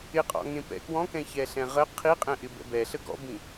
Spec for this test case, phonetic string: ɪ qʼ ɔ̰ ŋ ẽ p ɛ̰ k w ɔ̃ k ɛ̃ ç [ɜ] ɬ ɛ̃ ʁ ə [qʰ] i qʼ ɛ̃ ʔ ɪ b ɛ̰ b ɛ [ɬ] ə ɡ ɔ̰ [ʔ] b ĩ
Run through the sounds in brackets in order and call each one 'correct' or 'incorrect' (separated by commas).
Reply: incorrect, correct, correct, incorrect